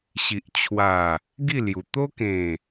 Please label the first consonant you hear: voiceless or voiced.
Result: voiceless